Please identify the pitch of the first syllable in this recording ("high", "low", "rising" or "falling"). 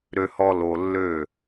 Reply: low